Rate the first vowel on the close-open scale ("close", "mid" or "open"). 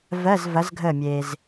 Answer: mid